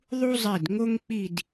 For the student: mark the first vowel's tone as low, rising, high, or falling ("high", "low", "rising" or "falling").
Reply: high